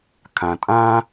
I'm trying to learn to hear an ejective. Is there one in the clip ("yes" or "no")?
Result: yes